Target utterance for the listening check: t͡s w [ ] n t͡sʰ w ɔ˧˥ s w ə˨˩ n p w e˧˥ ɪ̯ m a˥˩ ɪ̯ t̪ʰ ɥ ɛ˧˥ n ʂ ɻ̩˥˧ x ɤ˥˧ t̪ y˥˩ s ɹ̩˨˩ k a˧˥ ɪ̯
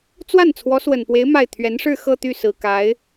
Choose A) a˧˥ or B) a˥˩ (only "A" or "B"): B